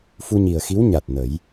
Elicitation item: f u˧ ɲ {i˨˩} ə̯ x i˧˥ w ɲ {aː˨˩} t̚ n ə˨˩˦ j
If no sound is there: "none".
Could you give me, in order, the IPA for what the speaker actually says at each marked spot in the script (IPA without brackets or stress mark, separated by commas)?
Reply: i˨˩, a˨˩